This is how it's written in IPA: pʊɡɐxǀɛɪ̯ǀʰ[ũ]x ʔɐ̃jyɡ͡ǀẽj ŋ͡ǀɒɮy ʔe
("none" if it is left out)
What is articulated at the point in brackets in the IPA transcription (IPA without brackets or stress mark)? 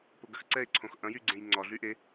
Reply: õ